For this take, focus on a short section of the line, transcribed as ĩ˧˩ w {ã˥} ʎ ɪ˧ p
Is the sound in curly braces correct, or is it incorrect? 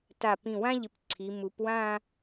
correct